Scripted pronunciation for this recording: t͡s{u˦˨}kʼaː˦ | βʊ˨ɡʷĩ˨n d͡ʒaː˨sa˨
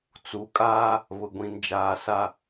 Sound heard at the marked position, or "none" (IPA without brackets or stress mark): u˨˦